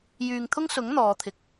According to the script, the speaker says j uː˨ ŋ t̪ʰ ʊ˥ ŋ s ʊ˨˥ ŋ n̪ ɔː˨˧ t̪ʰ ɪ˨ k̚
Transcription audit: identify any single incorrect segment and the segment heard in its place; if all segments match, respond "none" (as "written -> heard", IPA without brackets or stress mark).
uː˨ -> yː˨